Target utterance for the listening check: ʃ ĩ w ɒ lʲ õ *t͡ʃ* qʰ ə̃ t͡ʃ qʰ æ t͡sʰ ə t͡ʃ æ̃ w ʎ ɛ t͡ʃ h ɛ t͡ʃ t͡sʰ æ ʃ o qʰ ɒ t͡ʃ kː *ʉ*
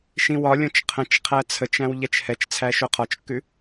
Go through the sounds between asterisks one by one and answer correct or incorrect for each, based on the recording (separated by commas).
correct, correct